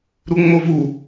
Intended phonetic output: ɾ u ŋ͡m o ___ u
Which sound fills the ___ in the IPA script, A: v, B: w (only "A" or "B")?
A